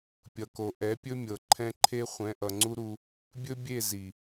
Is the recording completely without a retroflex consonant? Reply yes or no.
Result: yes